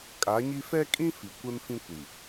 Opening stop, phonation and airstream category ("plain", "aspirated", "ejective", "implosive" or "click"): ejective